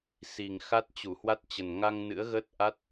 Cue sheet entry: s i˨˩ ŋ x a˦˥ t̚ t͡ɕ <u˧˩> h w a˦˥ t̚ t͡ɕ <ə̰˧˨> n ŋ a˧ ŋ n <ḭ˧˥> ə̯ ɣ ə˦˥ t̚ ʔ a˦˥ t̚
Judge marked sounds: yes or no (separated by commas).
yes, no, no